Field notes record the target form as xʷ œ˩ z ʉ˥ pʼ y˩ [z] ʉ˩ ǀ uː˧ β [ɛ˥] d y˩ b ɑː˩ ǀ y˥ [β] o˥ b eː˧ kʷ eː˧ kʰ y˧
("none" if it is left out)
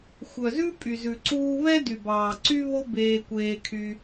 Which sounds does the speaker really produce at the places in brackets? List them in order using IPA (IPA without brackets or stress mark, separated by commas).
z, ɛ˥, β